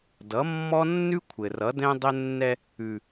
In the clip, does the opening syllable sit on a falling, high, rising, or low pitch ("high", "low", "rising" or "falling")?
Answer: rising